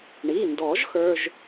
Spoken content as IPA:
ɳ i˩˧˩ n d ɔ˨˩˦ ʒ x ə˞˧˥˧ ʒ

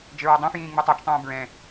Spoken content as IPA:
d͡ʒ ɘ ɹ ɔ dˤ ĩ f j ĩː ŋ͡m u tˤ a t͡ʃ tˤ ũː b ɹ ɛ̃

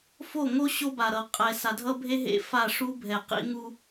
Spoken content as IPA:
f o˦˨ ŋ o˦ ɕ o˦ b a˨ ɾ ʌ˨ qʼ ɛ˨ s a˨ dʱ ʌ˦ bʱ e˦ ɦ ḛ˦˨ f a˦˨ ʂ u˦ bʱ ɛ˨ q ḭ˦ ŋ u˦

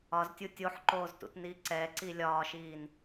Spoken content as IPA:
ɒ z tʲ u tʲ o ħ ǃ oː z t ṵ t n iː ǀ ɛ ǀ i lʲ ɒː ʃ iː n

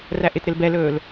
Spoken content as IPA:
r æ ʔ ɪ t ɾ ɪ l b ɛ l ɵː l

